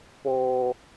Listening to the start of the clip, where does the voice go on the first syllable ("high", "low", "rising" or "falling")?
high